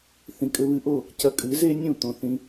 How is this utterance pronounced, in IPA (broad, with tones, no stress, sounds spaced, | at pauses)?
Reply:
θ ĩ˨ kʼ ɘ˧ β ɨ˧ ʔ o˦˨ | c ɐ˧ kʼ ɨ˨˦ z e˦ nʲ ũ˦˨ t̪ õ˨ θ ĩ˧